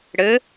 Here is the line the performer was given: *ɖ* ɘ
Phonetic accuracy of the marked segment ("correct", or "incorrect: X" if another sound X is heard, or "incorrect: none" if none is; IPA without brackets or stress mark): incorrect: ɽ